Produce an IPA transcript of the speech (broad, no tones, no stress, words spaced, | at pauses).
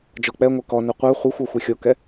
d͡ʒɔk͡pɛŋʷɛ kɔnœ qʷœ χʷixʷɔ xʷixʲokɛ